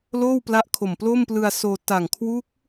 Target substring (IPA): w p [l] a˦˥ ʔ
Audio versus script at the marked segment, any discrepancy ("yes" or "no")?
no